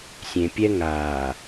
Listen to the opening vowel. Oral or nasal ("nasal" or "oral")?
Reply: nasal